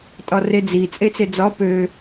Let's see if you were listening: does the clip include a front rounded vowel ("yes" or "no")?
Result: yes